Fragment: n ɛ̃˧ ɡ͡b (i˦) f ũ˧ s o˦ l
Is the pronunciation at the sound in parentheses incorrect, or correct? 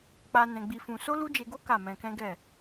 incorrect